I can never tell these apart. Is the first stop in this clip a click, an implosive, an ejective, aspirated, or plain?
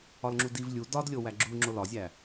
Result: click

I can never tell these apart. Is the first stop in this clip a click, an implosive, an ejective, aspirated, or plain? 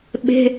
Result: implosive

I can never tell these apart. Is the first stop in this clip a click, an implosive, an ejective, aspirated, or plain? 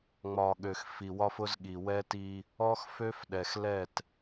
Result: implosive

